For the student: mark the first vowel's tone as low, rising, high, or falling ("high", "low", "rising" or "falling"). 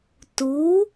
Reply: rising